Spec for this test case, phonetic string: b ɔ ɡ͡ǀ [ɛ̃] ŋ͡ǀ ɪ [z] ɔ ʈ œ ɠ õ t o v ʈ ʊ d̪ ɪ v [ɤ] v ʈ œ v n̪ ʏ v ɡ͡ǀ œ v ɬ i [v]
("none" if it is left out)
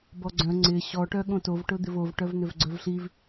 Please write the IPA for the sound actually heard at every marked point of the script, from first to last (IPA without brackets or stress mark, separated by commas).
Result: œ̃, ɕ, o, v